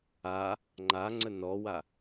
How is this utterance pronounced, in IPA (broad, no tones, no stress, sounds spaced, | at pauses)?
a | ŋ͡ǃ a ŋ͡ǀ ə n ɔ w a